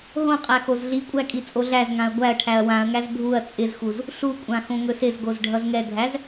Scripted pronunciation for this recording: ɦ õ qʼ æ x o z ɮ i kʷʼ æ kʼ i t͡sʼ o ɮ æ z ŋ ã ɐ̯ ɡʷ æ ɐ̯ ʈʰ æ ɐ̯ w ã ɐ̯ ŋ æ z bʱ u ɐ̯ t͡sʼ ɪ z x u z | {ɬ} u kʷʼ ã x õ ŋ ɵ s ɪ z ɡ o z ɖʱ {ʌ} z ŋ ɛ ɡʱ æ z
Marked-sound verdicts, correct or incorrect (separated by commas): correct, correct